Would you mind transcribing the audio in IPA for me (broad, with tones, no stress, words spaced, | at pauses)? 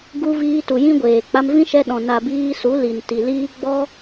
ɡu˧viː˧tu˨ jĩ˦ɡʷeː˨ k͡pa˧mvĩ˦ʃɛ˧ɗɔ̃˨ na˨ biː˧su˨˦ li˨n ti˨liː˦ ɡ͡bɔ˦